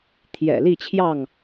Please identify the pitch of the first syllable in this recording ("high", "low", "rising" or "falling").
low